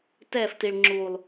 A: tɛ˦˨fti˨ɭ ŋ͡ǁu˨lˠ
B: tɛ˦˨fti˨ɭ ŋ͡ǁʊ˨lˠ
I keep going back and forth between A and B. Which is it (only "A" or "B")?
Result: A